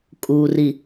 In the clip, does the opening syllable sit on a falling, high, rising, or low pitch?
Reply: low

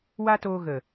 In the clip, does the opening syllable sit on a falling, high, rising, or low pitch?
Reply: high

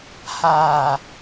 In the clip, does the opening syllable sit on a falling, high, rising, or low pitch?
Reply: low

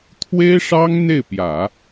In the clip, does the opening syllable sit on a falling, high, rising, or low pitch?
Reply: high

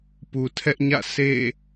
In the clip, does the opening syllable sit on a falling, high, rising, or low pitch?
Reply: low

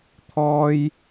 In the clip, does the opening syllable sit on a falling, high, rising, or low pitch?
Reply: high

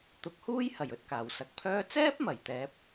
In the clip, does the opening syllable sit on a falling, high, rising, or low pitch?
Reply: rising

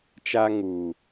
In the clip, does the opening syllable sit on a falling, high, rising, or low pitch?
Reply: high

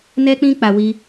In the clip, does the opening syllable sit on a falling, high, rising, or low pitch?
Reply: high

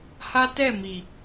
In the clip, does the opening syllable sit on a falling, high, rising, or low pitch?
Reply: high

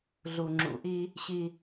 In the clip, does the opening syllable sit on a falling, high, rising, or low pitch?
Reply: low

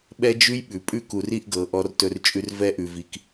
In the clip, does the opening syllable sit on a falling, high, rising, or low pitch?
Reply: high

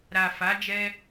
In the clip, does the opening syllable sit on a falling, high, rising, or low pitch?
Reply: low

